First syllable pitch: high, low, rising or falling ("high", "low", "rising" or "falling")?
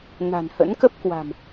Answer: low